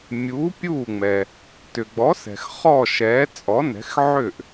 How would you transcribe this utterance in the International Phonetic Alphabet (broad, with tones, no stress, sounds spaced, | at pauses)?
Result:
mʲ u˩˥ pʲ uː˥˩ ŋ͡m ɛ˩ | t ʏ˩ ɡ͡b ɔ˩˥ s ɛ̤˩ x χ ɔ˥˩ ʃ ɛː˩˥ t͡sʼ ɔ˩˥ n ɛ̤˩˥ x ʕ ʏ˥˩ ʔ